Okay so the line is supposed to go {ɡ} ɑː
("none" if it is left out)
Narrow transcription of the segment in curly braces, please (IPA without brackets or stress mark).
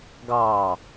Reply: ɡ